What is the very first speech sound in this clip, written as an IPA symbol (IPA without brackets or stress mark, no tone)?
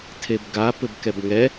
tʰ